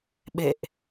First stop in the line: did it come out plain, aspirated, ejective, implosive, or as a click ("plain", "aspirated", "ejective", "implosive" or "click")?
implosive